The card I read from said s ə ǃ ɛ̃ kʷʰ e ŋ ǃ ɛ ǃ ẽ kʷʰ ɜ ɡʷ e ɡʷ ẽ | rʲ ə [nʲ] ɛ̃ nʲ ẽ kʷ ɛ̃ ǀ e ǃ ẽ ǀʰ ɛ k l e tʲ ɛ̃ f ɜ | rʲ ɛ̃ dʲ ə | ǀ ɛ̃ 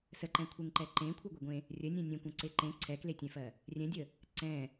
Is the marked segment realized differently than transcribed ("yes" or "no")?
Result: no